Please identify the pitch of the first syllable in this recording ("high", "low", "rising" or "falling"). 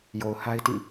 low